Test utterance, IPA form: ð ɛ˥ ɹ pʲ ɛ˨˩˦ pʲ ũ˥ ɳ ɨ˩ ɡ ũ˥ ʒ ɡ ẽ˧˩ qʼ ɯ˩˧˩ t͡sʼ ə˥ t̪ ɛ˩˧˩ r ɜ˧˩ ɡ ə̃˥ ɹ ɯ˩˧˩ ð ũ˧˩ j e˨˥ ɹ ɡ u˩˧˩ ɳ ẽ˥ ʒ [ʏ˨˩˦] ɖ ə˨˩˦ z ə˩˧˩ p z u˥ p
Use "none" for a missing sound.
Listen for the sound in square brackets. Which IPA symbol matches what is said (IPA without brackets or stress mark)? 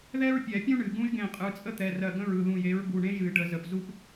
ɨ˨˩˦